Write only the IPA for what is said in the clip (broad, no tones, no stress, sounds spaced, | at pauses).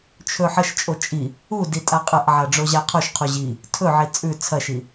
t͡ʃʰ ɵ ħ ɐ ʃ t͡ʃʼ o t͡ʃʼ i | u d i tʼ a qʼ ɐ ʔ ʕ a ɖ͡ʐ o ʑ a qʰ o ʃ qʰ u ʑ i | tʰ ɵ ʕ i t͡sʼ ʉ t͡sʰ ɐ ʃ i